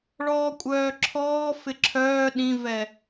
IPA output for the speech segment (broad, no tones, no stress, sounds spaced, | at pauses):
ɭ ɔː kʷʼ œː ǁʰ ɔː f ɪ ǁʰ œː ɗ ĩ v ɛ